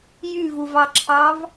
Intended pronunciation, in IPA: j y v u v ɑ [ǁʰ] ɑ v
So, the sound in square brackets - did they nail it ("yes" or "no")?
yes